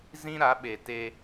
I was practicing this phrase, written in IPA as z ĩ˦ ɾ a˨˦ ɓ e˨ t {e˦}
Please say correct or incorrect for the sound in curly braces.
correct